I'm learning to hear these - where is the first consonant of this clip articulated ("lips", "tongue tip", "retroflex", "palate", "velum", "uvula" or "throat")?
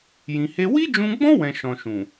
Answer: palate